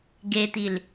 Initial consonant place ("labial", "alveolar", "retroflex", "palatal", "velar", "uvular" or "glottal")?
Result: velar